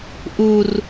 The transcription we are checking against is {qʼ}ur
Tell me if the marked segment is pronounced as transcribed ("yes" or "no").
no